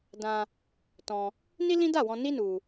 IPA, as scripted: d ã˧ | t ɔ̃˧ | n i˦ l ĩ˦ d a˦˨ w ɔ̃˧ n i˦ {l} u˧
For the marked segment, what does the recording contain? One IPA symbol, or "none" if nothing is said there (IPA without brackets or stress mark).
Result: n